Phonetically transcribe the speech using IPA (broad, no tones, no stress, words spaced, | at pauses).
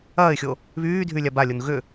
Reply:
ɐːɪ̯xʲo | βyːdʱylʲa balʲon ɣʏ